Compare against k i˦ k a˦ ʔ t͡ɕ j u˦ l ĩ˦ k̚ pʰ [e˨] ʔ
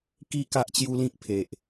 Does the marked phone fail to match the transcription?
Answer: no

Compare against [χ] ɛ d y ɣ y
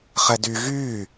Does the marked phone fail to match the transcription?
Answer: no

